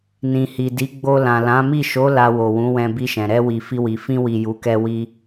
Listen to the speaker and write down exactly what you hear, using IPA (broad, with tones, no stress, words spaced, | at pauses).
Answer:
nĩ˨hi˨di˨˦ ɡ͡bo˧ lã˨lã˨˦mi˦˨ ʃo˨˦ la˧wo˨wũ˨˦wɛ̃˧ bi˧ʃɛ̃˨ ɾɛ˧wi˨ fi˧wi˨ fĩ˧wi˨ ju˨˦kɛ˦ wi˧